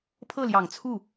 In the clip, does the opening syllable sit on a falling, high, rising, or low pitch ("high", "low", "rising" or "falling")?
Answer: falling